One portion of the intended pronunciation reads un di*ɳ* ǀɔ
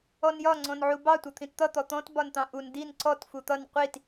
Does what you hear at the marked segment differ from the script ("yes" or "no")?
yes